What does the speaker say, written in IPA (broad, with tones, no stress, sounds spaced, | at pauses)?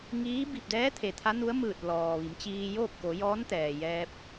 ŋ iː˧˥ b i˧˩ p̚ d ɛː˧˥ t̪ʰ e˩ t̪ʰ a˧˥ n u˧˥ ə̯ m ɯː˧˩ t̚ l ɔː˩ ʋ i˩˧ m t͡ɕ iː˧ j oː˥˨ p̚ k o˩˧ j ɔː˧˥ n t̪ ɛː˩ j ɛː˧ p̚